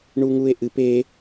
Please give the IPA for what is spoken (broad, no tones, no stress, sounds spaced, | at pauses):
ɳ u ŋ u e̯ ʔ ɨ p e